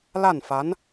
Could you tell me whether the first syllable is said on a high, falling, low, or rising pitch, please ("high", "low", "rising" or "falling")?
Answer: falling